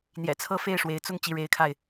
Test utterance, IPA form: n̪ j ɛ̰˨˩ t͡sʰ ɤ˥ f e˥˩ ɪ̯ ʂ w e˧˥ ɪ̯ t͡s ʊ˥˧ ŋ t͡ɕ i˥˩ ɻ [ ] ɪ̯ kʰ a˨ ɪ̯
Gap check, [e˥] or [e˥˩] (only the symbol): e˥